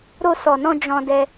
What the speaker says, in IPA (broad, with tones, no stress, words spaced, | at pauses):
ɾo˧sɔ˨nɔ̃˧ d͡ʒɔ̃˧dɛ˧